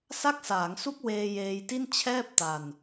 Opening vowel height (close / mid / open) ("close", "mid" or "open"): open